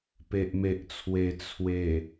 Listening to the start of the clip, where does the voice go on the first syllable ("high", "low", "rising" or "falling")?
low